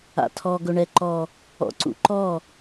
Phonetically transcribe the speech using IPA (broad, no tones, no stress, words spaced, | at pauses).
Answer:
a̰tʰɔ ɡɵɳɛǃɔ | ɔ̰ǀṵǃɔ